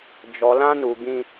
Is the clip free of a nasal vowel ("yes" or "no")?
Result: no